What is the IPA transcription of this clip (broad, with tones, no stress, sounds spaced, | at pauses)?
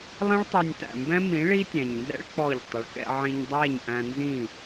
lˠ ɛ̃˦ ɭ tˤ ɛ˧ nʲ t æ̰˨ m b ɛ̃˦ m ĩ˨˦ ɭ i˦ tʲ æ̃˨ ɲ n z ɛ̰˦ ɭ k͡p ɔ˦˨ ʎ tˤ ʊ˨ ɭ k ɛ̰˧ ʕ ĩ˧ ɲ dˤ æ˦˨ ɲ ʔ æ̃˧ n z ĩ˦˨